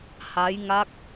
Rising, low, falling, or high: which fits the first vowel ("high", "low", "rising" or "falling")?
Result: rising